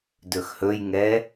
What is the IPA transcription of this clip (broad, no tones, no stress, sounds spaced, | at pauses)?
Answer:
d ɵ x h ɵ j ŋ ɛ